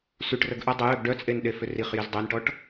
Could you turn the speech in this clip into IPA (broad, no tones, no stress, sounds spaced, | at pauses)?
s y ʈ r ə ɡ ʔ ə dˤ ə j œ ɡ ɖ œ t͡sʼ e n ɗ e f ʏ r i χ j i z dˤ e n ʈ ɔ ʈ